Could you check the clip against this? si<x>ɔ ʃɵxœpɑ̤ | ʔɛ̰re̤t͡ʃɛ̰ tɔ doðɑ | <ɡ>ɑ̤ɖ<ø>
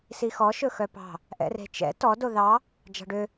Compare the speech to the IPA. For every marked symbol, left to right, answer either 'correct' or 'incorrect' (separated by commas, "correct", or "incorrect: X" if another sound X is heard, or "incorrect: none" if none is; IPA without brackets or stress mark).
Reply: correct, incorrect: d͡ʒ, correct